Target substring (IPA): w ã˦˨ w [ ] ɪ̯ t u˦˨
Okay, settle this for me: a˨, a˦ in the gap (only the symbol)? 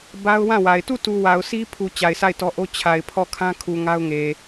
a˨